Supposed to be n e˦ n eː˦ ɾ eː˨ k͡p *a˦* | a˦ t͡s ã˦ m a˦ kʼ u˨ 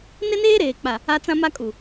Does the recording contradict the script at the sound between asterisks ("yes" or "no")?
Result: yes